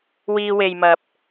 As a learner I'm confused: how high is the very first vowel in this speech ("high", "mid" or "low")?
high